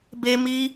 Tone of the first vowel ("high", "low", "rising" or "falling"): high